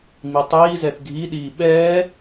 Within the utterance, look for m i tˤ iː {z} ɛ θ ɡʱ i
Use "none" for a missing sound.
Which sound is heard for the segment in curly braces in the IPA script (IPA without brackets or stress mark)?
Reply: z